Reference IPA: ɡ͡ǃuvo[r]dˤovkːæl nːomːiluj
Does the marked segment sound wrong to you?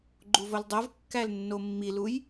yes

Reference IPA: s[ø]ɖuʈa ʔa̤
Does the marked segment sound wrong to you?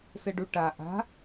yes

